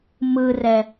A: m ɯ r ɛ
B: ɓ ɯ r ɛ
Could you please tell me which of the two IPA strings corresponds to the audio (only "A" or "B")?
A